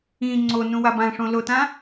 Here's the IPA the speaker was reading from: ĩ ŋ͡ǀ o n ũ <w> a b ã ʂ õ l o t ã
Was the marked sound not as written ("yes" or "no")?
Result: no